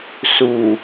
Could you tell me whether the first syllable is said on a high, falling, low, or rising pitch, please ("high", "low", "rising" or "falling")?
low